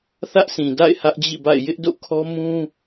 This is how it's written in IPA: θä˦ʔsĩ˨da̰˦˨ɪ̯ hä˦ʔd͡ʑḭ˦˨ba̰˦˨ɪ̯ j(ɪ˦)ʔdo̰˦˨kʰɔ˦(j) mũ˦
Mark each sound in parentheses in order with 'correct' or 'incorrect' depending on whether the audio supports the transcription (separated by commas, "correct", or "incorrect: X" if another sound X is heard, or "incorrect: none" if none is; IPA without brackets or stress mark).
correct, incorrect: none